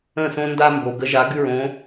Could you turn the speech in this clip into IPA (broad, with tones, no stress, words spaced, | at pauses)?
ə̃˥˩sõ˦ nda˦mbo˩ ɡə˨˦ʒa˨˦ ɡʉ˦ɹõ˨˦